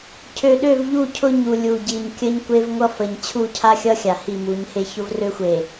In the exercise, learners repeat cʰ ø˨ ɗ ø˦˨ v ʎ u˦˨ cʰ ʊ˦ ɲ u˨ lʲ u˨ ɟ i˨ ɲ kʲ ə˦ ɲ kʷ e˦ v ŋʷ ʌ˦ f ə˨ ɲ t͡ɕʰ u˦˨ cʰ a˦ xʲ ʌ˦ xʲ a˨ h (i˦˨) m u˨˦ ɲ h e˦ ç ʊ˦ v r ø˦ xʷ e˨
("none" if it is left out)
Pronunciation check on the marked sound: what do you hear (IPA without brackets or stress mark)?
i˦˨